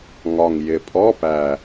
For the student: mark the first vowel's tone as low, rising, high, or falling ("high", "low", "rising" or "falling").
low